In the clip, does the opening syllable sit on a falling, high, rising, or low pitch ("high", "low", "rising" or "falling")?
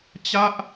falling